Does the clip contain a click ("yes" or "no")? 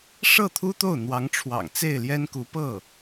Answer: no